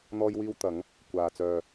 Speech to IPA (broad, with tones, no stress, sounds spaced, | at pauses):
n̪ ɔː˥ j w iː˥ w t̪ ɐ˨˧ ŋ | kʷ aː˨ t͡s œː˨